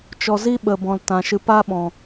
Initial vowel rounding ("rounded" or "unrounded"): rounded